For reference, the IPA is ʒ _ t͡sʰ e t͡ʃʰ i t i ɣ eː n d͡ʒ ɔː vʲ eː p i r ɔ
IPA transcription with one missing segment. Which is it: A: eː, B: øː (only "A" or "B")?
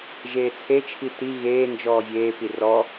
A